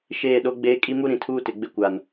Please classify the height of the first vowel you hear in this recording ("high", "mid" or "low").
mid